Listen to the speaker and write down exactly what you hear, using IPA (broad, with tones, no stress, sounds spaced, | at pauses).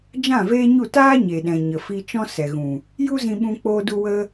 d͡ʒ ã˦˨ v eː˦ ɲ u˦˨ t aː˦ ɲ e˨ ɗ ɛ̃˨ ɲ ə˨ f i˧ t͡ʃ ɔ̃˦ s ɛ˨ ɣ ũ˨ | j u˦ z ĩ˧ ɓ ũ˧ k͡p oː˧ d u˧ w ə˧